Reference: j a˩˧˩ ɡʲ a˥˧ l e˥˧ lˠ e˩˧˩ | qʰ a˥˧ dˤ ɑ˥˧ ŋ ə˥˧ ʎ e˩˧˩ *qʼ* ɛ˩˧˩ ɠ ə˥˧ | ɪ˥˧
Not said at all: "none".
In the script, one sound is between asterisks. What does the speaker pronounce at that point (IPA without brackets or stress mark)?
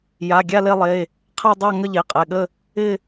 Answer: qʼ